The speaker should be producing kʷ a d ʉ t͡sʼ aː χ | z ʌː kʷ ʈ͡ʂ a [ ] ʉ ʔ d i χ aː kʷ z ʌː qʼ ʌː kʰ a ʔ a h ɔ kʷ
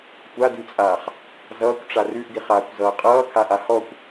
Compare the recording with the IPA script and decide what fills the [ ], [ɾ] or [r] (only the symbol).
r